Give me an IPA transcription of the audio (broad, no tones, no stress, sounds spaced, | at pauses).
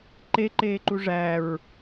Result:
ǃ e ǃ eː ǃ u ʐ æ ɹ